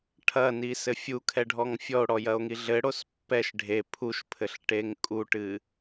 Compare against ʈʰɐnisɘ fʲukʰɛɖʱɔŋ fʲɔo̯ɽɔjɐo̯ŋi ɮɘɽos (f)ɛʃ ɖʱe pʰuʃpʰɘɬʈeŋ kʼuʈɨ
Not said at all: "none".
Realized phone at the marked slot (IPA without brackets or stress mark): pː